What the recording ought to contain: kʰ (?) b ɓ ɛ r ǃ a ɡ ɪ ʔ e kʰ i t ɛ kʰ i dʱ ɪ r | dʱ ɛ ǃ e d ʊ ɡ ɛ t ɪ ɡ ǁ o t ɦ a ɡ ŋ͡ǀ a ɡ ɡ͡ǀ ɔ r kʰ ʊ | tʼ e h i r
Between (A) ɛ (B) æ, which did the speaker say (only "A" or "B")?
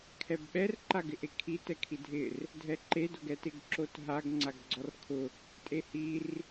A